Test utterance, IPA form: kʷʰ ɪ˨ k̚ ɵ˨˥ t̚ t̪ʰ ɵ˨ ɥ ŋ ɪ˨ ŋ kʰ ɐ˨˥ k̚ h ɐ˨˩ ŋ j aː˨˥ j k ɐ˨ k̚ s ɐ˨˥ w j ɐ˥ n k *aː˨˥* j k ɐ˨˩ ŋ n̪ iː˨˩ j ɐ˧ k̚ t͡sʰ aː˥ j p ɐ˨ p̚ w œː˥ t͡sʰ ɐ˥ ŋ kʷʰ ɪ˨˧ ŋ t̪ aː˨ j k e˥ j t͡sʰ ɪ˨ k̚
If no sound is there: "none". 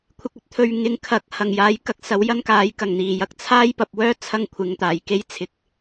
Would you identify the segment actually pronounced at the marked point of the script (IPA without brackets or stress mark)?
aː˨˥